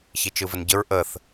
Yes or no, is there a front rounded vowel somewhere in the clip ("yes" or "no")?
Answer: no